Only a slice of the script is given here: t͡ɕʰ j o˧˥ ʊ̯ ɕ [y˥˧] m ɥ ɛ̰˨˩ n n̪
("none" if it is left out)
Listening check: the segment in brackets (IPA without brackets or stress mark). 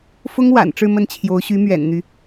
y˧˥